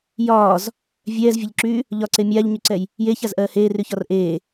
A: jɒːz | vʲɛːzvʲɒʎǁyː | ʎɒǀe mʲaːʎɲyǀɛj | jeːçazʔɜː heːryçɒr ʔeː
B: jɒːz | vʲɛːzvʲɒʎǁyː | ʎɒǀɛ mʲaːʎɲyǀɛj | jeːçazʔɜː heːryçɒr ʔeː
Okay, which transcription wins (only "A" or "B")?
A